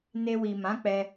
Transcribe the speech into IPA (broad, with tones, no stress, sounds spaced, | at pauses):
n e˧ w i˨ m ã˨˦ k͡p ɛ˧